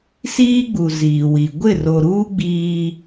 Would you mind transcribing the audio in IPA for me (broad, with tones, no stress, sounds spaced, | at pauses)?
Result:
s iː˦ ɡ͡b u˨ z iː˨ w i˨ ɡʷ ɪ˦˨ r o˨ ɾ uː˦ ɡ͡b iː˦